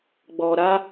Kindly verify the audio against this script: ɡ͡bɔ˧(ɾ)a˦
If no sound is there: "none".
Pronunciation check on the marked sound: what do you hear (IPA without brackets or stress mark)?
ɾ